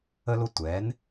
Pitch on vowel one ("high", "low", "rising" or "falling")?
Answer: high